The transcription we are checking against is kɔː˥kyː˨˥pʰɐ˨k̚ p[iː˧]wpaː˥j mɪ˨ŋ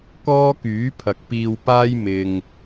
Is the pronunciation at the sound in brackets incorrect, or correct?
correct